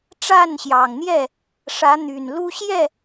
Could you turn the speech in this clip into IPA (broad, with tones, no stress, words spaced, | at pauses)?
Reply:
ʈ͡ʂa˥˨nɕjɑ˨˩ŋn̪jɛ˥˨ | ʂä˨˦n̪y˨˩nlu˦ ɕjɛ˥˨